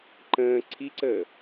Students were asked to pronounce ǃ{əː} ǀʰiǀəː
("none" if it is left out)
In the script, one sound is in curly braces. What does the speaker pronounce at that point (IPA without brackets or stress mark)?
ə̃ː